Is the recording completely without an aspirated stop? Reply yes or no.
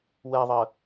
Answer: yes